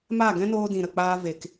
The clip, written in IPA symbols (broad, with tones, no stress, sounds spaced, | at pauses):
m a˦˨ ɡ ɛ̃˦ n oː˧ d ĩ˨ ɾ ə˨ k͡p aː˧ v e˨ k